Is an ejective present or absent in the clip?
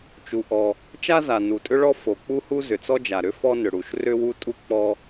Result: present